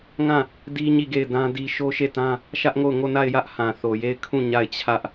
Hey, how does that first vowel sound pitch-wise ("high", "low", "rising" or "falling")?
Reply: falling